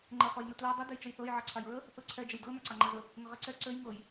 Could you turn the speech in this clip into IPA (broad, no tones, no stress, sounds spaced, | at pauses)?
ŋ͡ǃ ə χ ɤ j n ə t l a dˤ ə d ø j t͡ʃ ə j θ ɤ j ʕ ɑ ǀʰ a j ɹ ə | θ ɤ ǀʰ ɛ d͡ʒ ə j d ɤ n a ǀ ɑ ŋ͡ǃ a z ə | ŋ ə ʁ ɛ ǀ ɛ ǀ ø j ŋ ɤ j